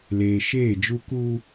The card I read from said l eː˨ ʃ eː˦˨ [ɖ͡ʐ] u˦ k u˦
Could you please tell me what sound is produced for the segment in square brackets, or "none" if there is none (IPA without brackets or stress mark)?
d͡ʒ